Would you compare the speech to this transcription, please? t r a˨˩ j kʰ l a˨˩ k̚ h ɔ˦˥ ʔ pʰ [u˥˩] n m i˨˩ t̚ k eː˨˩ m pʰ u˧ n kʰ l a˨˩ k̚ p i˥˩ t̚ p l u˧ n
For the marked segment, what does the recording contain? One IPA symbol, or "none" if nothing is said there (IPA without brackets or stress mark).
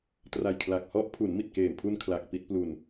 u˩˦